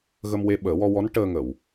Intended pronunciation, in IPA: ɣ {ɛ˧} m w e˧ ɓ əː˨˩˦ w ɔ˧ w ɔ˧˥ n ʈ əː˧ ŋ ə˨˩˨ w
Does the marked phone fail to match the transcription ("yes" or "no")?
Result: yes